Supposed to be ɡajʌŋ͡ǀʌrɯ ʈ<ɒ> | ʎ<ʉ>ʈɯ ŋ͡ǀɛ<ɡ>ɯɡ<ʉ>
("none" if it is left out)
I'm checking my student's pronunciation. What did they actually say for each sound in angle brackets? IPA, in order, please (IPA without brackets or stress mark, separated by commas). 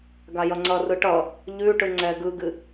ʌ, ʉ, ɡ, ɨ